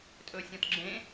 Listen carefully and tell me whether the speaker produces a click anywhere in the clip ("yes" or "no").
yes